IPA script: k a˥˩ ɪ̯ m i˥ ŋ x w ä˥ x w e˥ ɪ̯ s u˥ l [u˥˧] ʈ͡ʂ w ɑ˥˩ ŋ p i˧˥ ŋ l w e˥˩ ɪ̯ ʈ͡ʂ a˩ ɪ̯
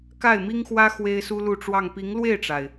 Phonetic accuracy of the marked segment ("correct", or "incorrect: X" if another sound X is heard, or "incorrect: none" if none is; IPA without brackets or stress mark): correct